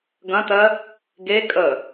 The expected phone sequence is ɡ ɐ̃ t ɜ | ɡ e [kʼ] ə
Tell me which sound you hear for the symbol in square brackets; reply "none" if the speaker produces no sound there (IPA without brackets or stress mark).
kʼ